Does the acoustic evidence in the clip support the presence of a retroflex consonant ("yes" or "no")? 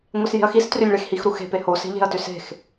yes